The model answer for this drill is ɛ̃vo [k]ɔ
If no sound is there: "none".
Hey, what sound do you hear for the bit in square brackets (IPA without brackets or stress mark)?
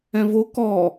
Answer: k